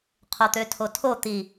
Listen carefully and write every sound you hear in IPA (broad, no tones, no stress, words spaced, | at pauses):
qʰot̪øtʰotʰo t̪i